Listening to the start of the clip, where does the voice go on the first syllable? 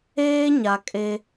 high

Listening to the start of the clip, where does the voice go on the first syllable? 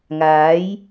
rising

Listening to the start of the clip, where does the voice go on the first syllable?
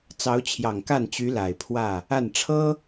rising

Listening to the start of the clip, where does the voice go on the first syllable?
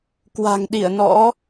low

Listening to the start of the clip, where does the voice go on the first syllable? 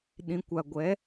low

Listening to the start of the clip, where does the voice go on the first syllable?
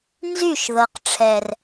falling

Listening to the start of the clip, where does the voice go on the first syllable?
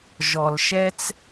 low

